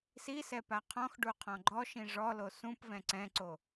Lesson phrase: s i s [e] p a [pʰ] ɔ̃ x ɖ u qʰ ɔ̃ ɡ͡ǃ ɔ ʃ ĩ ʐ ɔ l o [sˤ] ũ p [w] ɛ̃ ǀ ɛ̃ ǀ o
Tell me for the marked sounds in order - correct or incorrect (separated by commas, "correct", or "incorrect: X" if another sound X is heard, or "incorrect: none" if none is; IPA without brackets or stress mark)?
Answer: incorrect: ɛ, incorrect: qʰ, incorrect: s, incorrect: v